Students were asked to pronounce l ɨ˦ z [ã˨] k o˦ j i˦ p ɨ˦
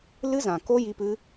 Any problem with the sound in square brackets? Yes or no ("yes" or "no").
no